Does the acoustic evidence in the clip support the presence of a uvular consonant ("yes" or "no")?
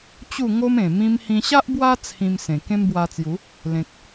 no